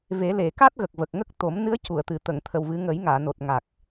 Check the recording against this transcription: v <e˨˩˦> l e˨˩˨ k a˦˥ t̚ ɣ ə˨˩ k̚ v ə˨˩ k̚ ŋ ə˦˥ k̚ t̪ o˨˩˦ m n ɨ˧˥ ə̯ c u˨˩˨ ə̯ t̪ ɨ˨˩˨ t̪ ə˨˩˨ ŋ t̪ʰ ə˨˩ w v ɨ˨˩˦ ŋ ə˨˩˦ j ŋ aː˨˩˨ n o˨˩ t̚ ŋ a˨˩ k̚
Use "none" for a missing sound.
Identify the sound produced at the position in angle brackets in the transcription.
e˨˩˦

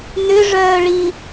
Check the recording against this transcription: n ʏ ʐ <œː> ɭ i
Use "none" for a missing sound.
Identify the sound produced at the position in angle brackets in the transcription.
œː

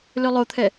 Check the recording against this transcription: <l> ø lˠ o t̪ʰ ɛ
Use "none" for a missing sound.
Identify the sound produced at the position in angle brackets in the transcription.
l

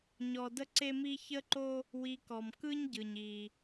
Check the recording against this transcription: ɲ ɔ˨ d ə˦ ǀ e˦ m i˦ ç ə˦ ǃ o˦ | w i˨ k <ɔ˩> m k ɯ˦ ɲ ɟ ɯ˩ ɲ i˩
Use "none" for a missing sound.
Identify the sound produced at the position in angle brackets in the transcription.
ɔ˩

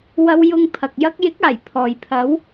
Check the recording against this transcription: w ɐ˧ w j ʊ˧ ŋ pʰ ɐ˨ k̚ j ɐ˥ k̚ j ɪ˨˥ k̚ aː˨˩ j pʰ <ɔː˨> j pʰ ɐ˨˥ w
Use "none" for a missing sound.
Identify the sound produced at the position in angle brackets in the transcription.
ɔː˨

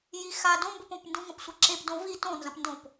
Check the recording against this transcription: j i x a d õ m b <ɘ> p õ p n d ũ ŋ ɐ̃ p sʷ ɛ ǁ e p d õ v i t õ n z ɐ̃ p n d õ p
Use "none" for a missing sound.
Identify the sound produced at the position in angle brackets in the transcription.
ɘ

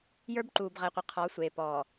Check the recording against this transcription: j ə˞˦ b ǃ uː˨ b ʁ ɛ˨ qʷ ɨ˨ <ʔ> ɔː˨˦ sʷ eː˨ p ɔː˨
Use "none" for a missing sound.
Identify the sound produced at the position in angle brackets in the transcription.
qʰ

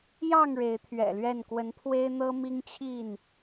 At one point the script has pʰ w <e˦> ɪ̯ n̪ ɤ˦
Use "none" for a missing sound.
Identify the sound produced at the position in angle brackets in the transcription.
e˦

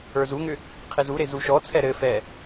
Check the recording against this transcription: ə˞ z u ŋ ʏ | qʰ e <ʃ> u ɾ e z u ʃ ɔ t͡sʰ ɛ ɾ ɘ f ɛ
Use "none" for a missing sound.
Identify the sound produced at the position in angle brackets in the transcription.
z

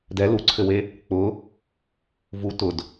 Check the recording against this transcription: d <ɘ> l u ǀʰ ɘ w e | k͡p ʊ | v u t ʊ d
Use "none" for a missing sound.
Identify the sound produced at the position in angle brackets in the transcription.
ɛ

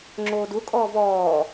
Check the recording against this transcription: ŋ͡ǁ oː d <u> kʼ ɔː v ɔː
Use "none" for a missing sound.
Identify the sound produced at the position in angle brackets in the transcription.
u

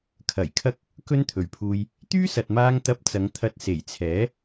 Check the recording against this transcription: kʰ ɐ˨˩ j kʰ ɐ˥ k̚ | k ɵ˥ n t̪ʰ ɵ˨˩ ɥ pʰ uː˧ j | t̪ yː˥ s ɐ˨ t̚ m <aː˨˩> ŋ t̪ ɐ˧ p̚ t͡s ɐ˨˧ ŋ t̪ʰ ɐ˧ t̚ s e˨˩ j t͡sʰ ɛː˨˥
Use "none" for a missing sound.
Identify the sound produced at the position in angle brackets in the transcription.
aː˧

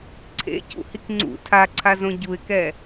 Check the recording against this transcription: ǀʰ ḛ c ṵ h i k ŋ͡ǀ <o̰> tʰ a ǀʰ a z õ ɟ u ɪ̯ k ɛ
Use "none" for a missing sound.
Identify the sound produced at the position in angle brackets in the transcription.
ṵ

